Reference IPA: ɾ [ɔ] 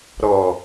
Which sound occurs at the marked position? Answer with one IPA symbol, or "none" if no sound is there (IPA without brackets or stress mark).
ɔ